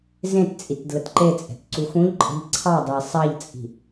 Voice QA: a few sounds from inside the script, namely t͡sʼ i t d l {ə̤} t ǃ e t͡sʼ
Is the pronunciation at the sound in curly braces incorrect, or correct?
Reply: incorrect